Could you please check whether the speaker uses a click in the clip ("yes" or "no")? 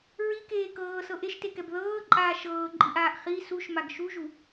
yes